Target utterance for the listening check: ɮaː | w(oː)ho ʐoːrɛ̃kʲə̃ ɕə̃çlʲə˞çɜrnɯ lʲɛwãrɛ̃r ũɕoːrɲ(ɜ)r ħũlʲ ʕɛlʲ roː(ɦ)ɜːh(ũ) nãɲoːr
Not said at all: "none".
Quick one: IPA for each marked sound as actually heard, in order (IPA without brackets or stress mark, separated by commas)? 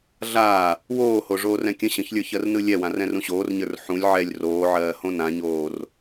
oː, ə˞, ʕ, õ